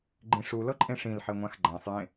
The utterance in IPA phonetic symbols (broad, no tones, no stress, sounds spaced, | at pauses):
ɡ͡ǃ ĩ ʂ u l ɤ ǃʼ ẽ ʂ ĩ l ħ e ŋʷ ã x ɡ͡ǃ ã sˤ j ẽ